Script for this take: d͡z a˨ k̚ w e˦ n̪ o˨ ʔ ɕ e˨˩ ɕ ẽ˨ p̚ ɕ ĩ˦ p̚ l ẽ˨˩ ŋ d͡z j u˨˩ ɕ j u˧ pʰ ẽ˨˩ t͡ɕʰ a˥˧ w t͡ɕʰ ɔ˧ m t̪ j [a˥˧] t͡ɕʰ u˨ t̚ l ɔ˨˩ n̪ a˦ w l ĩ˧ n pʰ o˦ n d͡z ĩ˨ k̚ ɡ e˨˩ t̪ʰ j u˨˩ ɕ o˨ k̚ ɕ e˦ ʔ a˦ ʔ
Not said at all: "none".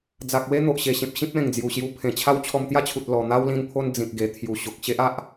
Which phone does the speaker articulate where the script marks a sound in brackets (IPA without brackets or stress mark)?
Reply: a˥˧